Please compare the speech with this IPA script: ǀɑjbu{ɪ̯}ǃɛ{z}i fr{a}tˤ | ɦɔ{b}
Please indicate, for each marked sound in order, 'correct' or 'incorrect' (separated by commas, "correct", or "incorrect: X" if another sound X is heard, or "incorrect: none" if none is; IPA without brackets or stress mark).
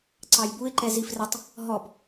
correct, correct, incorrect: ə, correct